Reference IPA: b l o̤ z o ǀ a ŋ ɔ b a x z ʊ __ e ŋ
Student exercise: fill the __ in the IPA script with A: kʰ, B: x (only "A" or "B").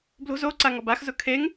A